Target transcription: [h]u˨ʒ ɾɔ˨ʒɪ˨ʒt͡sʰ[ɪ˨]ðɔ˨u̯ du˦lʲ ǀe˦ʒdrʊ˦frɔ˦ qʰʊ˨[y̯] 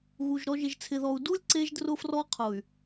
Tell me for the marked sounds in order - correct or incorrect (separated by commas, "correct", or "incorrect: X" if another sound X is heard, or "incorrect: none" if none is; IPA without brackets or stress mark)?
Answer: incorrect: ɣ, correct, correct